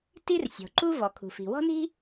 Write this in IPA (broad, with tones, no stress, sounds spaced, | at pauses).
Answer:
t i˥ r sʲ ɔ̤˩ ǃ u˥ v ɔ˩ kʰ ṳ˩ f i̤˩ w ɔ̤˥ n i̤˥